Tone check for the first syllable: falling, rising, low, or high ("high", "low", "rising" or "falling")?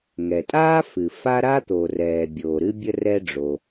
low